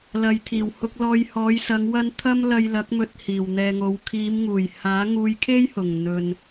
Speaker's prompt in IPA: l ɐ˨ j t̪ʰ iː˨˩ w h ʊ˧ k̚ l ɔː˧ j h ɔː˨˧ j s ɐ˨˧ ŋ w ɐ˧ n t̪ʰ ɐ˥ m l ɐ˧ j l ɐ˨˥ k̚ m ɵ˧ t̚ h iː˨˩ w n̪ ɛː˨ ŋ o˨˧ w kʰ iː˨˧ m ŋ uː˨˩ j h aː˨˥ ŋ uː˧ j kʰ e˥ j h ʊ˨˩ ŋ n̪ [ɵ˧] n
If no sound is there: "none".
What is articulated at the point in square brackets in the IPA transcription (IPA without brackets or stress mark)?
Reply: ɵ˨